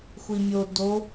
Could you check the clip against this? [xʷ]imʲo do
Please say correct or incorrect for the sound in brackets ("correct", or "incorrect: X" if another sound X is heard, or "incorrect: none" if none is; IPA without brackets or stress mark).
correct